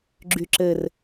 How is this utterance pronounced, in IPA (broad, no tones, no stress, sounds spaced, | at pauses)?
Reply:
ɡ͡ǁ y ǁ ɘ r